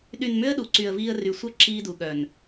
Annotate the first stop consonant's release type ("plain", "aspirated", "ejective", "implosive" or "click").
implosive